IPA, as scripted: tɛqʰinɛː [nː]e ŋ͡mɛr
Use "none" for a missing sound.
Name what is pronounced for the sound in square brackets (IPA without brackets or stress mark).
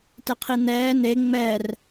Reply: n